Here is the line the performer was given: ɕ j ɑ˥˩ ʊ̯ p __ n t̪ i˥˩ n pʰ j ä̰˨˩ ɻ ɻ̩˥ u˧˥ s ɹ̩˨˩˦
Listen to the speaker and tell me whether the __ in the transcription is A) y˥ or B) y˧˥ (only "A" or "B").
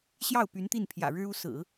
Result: B